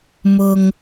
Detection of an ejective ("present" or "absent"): absent